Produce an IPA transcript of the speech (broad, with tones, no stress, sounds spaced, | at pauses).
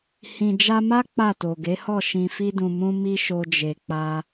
h ĩ˨ d͡ʒ a˧ m a˦ k͡p a˦˨ t o˨ ɡ e˨˦ h ɔ˦˨ ʃ ĩ˨ f i˧ d ũ˨ m ũ˧ m i˦ ʃ o˧ d͡ʒ e˨ k͡p a˧